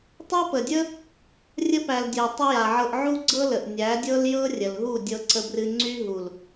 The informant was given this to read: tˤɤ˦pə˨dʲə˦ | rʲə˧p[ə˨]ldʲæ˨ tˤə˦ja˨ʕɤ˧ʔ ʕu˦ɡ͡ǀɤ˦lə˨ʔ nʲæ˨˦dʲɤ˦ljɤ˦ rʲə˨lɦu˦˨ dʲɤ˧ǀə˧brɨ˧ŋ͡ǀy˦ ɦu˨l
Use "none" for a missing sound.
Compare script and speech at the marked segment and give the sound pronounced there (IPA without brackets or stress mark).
æ˨